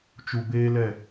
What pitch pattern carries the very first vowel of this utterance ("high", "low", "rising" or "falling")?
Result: low